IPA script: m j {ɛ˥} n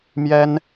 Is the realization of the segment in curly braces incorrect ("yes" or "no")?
no